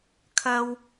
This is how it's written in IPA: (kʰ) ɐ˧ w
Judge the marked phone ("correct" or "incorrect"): correct